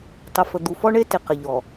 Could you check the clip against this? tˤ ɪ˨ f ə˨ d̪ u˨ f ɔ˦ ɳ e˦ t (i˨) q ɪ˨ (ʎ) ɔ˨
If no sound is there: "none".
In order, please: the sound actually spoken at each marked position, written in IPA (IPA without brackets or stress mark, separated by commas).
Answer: ɪ˨, ʎ